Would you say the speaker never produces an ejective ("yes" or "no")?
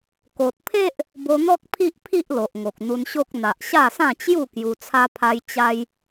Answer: yes